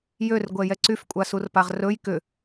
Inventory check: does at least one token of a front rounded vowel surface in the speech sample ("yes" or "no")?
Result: yes